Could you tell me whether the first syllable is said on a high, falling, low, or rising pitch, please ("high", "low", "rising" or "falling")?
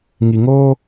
low